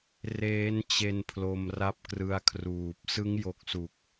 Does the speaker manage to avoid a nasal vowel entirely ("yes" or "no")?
yes